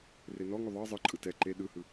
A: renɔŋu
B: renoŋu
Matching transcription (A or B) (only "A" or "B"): A